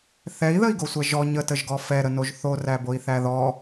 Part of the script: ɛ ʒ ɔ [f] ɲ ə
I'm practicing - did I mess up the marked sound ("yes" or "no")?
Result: yes